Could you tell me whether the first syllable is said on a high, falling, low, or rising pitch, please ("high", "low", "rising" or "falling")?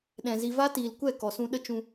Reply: low